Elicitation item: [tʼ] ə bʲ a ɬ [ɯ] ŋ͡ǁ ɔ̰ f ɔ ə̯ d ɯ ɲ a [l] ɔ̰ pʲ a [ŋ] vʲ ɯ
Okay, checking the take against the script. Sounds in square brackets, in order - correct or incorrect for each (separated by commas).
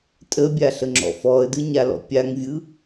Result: correct, incorrect, correct, correct